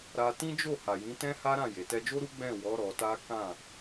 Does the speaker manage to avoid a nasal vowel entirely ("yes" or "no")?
no